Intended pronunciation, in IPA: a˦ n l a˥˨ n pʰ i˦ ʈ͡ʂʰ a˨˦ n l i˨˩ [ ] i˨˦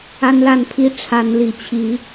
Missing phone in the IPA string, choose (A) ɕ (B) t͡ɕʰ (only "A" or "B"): B